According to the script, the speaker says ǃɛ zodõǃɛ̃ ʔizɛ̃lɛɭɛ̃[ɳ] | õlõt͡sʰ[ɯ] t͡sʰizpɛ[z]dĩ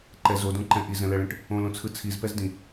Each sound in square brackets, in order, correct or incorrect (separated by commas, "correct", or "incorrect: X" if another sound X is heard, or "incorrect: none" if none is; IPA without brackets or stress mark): incorrect: ʈ, correct, correct